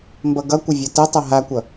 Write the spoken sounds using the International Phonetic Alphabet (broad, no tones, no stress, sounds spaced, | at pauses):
m b ʌ ɡ ʌ kʷ ə vʲ ʌ t ə tˤ ʌ ɦ a kʷ ʌ